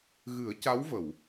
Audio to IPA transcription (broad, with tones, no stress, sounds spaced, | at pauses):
ɣ ɨ˨˩˦ ə̯ c a˧˥ w v ə˨˩˨ w